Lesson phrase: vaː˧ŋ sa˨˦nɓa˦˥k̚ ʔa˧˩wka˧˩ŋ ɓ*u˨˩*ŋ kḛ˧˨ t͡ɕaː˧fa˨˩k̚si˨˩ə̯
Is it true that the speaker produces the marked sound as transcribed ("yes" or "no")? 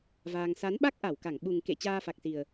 yes